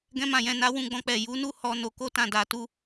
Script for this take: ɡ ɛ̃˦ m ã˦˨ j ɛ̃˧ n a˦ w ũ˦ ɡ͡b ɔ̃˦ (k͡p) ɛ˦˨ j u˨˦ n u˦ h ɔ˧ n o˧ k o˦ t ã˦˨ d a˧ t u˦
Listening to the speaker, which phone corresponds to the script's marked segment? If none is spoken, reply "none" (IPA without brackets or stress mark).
k͡p